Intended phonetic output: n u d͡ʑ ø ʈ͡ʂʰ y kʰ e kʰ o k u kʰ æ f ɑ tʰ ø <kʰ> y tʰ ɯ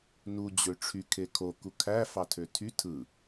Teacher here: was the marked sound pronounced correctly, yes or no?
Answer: no